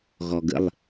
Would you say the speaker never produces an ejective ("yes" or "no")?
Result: yes